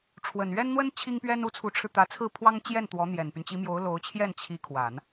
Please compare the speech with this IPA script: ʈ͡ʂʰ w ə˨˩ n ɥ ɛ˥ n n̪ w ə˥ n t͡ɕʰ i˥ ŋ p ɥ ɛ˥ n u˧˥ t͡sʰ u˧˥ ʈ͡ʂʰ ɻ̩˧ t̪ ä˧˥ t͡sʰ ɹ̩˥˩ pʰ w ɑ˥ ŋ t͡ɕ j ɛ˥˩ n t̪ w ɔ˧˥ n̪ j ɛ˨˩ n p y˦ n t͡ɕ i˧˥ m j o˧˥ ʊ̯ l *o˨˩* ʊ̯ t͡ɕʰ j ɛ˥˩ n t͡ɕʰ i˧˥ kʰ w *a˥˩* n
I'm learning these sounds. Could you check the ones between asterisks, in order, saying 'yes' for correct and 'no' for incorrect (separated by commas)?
no, no